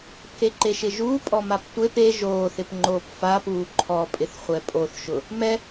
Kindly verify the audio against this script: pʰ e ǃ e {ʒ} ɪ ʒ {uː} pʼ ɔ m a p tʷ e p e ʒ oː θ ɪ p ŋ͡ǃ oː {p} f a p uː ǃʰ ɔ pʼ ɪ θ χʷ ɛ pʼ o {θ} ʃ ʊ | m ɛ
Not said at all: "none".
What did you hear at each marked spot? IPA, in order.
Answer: ʃ, uː, p, θ

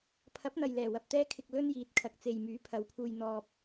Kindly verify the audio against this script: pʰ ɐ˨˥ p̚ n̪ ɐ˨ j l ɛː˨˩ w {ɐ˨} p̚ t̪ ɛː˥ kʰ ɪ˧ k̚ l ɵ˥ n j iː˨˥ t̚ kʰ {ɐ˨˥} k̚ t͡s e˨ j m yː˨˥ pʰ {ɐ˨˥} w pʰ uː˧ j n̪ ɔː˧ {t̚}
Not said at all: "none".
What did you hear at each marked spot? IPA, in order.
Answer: ɐ˨, ɐ˨, ɐ˨˧, p̚

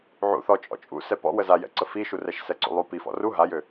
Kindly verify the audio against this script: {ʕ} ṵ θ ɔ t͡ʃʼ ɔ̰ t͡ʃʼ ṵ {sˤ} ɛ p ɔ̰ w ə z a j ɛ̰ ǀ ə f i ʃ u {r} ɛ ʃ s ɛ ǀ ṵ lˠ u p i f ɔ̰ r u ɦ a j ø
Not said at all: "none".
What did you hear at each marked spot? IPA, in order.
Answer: ʕ, s, r

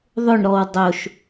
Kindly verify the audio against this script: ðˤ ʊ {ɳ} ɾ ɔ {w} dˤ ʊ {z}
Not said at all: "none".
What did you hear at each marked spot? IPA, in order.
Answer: ɳ, w, ʃ

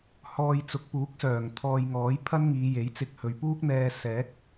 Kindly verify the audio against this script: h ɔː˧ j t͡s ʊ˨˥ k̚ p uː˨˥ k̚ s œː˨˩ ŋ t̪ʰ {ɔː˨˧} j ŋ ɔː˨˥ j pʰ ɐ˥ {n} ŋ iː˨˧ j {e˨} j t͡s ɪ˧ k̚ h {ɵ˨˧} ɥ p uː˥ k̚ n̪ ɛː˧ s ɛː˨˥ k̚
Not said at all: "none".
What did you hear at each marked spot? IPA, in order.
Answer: ɔː˧, n, e˨˥, ɵ˨˧

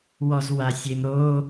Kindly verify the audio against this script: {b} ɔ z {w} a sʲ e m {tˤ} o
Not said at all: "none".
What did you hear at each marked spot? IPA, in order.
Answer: w, w, ɾ

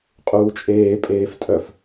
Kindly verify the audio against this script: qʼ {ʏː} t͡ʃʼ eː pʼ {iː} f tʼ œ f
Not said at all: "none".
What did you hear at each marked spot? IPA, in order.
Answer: uː, eː

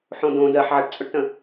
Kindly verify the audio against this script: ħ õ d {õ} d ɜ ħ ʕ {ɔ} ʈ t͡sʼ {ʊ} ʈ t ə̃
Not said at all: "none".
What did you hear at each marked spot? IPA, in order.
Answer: õ, ə, ʊ

